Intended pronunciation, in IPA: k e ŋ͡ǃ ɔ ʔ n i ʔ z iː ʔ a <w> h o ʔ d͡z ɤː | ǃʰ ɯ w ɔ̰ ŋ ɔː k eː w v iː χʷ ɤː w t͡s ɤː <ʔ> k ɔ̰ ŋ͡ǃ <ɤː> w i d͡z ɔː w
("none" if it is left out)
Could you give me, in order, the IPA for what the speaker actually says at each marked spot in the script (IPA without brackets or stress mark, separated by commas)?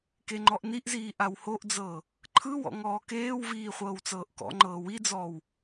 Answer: w, ʔ, ɤː